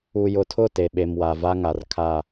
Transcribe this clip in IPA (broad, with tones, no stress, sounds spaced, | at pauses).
u˨ j ʊ˨ tʰ ʊ˦˨ t e˨ ɓ e˨ m w a˨ v a˦ ŋ a˨ r kʰ a˦˨